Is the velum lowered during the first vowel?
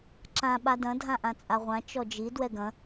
yes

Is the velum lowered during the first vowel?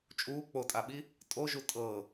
no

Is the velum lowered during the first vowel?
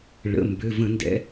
no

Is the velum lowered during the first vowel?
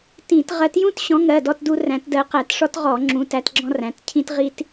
yes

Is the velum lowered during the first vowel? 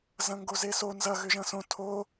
yes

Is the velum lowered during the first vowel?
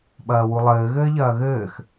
no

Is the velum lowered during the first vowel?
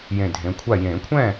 yes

